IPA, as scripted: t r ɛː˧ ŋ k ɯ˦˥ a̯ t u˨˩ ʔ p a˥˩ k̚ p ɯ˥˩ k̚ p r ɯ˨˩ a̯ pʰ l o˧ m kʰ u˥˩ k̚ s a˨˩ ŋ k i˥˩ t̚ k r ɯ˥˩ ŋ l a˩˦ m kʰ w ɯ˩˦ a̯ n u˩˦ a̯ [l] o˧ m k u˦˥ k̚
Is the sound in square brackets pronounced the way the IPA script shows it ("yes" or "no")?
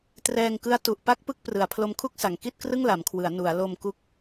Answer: yes